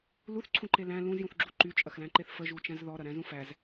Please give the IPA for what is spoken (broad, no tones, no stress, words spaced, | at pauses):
luθǀʰũǃe læ̃ lũzjũθɡ͡ǁu ǃyt͡ʃʼɐxlæ̃ǃeθ fəʒut͡ʃæ̃z ðɔɾɐɾæ̃zũ fæz